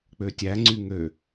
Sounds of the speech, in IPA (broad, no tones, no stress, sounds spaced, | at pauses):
k͡p ø tʲ æ ŋ͡ǀ y ŋ ø